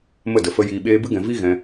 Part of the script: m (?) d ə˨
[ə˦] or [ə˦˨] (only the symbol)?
ə˦˨